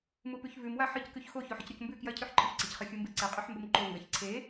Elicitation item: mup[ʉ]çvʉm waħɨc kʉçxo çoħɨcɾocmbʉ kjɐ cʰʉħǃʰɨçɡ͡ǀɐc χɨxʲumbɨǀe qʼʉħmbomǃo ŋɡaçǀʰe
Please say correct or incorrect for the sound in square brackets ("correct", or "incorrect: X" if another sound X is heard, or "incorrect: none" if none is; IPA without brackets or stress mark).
correct